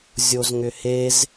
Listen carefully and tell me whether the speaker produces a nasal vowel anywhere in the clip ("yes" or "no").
no